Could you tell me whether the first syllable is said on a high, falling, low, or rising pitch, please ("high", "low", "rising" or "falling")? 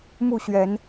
falling